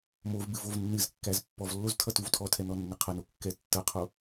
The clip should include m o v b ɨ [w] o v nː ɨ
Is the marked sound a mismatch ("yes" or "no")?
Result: yes